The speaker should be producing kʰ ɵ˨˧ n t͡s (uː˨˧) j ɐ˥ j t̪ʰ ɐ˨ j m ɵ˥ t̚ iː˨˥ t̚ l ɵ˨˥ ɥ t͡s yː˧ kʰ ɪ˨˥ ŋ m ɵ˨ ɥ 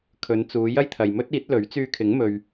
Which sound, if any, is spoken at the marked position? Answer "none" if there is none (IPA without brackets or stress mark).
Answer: uː˨˧